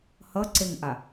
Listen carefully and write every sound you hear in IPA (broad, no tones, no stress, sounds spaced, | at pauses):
h ʌ ǀ e ŋ ʔ a